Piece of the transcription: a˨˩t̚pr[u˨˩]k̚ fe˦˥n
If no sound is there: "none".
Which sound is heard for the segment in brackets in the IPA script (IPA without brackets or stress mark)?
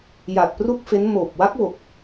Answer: u˥˩